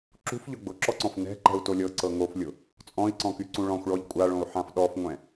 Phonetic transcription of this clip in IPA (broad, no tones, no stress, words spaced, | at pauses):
ǁṳfʎʊ ɡ͡bʊǁɔǀɔ̃f nɛ̤ǃɛ̤u̯to lʲɤǀɤ ŋoflʲʊ | t͡sʼɔ̃i̯ǀɔ̃kyǀũ ɭɔ̃xʷɭɔʎ kʷʼaɭõu̯ħãf ɗɔfŋʷɛ̃